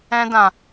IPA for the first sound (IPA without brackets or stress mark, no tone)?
ɛ̃